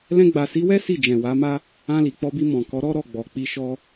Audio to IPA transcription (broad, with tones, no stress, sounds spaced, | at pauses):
l ɛ̃˧ ɡ͡b a˨ s i˨˦ w ɛ˦ s i˦˨ d͡ʒ ɛ̃˨ w a˨˦ m a˦ | ã˧ l i˨ k͡p ɔ˧ b i˧ m ɔ̃˨ k ɔ˨˦ ɾ ɔ˦ ɾ ɔ˦˨ ɡ͡b ɔ˨ k͡p i˧ ʃ ɔ˦